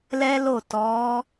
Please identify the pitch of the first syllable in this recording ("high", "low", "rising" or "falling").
high